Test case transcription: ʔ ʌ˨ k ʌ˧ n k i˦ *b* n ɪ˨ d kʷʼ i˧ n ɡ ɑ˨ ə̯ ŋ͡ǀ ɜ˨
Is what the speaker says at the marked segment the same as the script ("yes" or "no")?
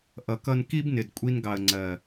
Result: yes